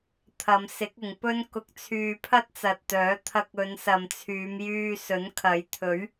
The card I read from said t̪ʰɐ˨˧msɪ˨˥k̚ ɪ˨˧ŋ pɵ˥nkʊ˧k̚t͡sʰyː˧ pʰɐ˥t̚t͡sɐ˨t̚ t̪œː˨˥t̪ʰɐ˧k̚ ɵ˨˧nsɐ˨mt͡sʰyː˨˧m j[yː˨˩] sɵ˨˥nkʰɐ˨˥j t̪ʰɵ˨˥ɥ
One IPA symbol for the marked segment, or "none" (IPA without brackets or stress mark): yː˧